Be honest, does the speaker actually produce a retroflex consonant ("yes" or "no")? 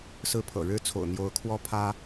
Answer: yes